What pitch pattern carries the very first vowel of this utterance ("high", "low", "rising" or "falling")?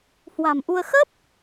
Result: low